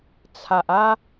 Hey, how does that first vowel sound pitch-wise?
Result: low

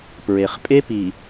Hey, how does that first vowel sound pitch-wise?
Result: low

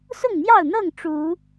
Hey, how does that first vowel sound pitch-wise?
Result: falling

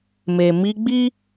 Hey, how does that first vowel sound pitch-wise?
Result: low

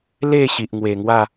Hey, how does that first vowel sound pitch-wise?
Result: falling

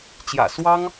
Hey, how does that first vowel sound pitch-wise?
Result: low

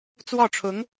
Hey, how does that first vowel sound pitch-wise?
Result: falling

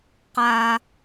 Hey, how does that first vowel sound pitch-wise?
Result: high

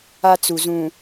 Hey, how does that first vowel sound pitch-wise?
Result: high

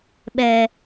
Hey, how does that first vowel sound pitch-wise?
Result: low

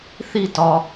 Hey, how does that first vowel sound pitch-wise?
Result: falling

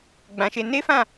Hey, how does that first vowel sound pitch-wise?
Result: low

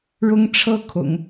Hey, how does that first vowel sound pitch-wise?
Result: high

